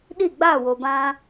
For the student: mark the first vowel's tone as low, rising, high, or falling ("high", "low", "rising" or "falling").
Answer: falling